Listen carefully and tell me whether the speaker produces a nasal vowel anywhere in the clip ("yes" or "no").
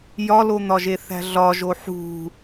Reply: no